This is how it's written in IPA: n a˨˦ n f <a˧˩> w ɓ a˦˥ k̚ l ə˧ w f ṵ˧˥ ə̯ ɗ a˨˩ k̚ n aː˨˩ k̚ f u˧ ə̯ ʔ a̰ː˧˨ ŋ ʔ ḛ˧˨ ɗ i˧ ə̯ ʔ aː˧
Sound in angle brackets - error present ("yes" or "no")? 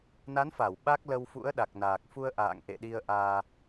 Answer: no